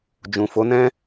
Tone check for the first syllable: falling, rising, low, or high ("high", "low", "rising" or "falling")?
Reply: low